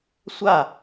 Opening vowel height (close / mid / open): open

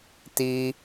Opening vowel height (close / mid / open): close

